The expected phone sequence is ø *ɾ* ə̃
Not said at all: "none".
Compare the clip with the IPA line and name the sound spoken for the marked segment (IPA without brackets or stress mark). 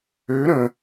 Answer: ɾ